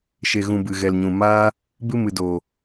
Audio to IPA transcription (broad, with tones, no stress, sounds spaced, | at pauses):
ʃ e˨ ɣ ũ˨ b ɨ˨ ɣ ɛ˨ l ɲ ũ˨ m aː˦ | b ɨ˦ m ɨ˨ d oː˨